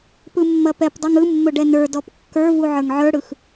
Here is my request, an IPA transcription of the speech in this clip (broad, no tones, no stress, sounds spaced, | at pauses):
p ɯ mː ɐ p ɛ p dˤ ɯ ŋ ɯ mː ʊ ɖ ɛ n ə˞ d ɔ p kː ə˞ v u ʕ ə˞ ŋ ʕ ə˞ ɽ ɯ x